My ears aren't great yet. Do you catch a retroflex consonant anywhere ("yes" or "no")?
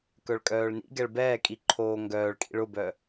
yes